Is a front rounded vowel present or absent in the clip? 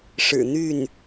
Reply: present